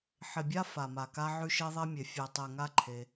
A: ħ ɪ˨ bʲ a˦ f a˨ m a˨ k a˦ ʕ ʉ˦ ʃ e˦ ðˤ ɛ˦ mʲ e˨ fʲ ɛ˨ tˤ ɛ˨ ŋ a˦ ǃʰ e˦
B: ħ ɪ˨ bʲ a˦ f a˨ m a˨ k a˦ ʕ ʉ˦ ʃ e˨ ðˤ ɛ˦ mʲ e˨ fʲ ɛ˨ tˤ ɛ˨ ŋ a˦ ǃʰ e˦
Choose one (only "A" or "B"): A